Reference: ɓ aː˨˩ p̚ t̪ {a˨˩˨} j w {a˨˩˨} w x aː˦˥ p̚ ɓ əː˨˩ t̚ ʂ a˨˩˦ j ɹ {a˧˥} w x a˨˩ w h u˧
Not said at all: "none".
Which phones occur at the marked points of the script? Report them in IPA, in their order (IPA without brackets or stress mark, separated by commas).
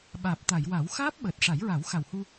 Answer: a˨˩˨, a˨˩˦, a˨˩˦